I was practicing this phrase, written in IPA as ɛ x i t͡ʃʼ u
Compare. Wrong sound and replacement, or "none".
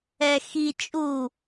none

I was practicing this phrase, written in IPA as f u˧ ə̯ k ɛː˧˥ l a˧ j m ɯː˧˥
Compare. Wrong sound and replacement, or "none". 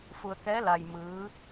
none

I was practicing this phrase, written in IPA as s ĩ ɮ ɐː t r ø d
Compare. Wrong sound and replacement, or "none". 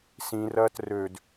ɮ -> r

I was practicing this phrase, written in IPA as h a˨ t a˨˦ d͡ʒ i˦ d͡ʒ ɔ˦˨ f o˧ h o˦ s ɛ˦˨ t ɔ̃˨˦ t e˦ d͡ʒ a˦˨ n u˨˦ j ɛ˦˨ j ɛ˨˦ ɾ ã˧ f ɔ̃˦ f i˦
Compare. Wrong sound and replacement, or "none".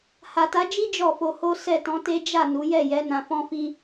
ɾ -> n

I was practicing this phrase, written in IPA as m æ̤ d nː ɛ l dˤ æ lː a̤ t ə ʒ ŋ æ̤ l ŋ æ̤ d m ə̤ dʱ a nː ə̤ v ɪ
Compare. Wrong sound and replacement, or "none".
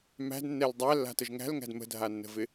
none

